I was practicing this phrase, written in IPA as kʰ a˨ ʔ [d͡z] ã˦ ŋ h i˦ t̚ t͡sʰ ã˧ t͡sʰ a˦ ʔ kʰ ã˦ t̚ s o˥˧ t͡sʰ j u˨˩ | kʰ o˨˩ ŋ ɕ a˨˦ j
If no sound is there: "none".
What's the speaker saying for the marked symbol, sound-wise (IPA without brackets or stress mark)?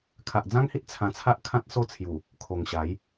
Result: d͡z